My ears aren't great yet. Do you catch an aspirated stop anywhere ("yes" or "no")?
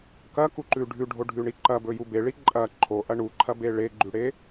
yes